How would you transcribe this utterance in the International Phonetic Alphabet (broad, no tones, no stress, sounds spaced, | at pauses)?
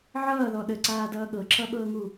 ʕ ʌː ð ɔ ɗ ə ǀ aː d ʌː ɠ ɤ ǁ ʌ ɓ ɤː ŋ u